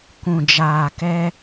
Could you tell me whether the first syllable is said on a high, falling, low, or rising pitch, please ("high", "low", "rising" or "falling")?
low